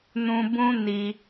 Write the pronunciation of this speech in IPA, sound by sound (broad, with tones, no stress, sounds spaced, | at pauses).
n ũ˦ b ũ˦ n i˧